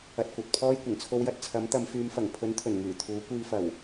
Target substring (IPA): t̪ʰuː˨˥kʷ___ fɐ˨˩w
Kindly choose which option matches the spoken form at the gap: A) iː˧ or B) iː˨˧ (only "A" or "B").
A